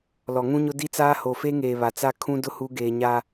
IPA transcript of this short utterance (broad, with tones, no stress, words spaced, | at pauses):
lɔ˨ŋũ˦ɲʊ˦ di˦t͡saː˦ ho˨fe˦ŋeː˨ βa˨ t͡sa˦ kʰũ˦ dʊ˦hu˨˦ɡeː˨ ɲa˦